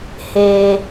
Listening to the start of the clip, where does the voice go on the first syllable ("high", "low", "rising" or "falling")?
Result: low